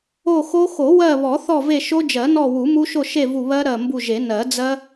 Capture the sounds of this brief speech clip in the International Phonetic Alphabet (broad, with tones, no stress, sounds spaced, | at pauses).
o˦˨ x o˦˥ x o˨˩˦ w ɜ˦˨ β ɔ˨˩˦ θ ɔ˦˨ v e˦˨ ʃ o˦˥ d͡ʒ ɜ˨˩˦ n ɔ˦˨ w u˨˩˦ m u˦˥ ʃ o˦˨ ʃ e˦˨ v u˦˨ β ɜ˦˥ ɾ ɜ˦˨ m b u˦˨ ʒ e˨˩˦ n ɜ˨˩˦ d͡z ɜ˦˥